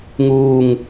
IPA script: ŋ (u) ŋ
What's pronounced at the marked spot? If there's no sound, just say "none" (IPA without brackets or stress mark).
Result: uː